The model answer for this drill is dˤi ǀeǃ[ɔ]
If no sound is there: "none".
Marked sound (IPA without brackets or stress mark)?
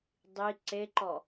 ɔ